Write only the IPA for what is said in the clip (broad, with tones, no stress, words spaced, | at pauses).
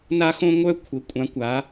na˥xõ˥ŋʷœ˥ kʷʰə˨˦kʷʼã˨˦kʷa˨˦